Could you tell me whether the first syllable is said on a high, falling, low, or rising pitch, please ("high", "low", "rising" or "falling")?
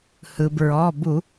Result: low